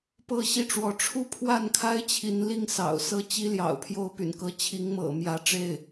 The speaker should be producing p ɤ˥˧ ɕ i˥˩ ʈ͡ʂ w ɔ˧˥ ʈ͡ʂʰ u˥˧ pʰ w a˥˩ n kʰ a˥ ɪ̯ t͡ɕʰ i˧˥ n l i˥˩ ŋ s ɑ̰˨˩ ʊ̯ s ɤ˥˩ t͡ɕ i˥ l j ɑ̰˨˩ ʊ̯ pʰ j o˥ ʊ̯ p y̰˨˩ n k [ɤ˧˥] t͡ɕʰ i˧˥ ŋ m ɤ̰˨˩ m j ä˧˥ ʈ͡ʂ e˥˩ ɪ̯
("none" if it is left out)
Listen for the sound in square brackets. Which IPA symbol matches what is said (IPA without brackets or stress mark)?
ɤ˧˥